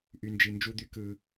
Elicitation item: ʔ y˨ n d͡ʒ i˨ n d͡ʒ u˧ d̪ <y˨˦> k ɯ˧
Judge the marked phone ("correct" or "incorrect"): incorrect